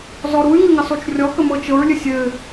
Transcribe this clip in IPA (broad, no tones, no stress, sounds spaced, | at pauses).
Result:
z ɔ ɾ u y̯ ŋ ɘ ŋ ɘ sˤ u t͡ʃ rʲ ɔ k ə m ɤ t͡ʃ ɤ ɹ lʲ ɘ sʲ ɘ